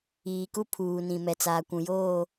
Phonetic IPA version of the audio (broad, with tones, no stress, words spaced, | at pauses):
iː˨ku˦pʰuː˨nĩ˨ mɛ˨t͡saː˨ kʷũ˨joː˦˨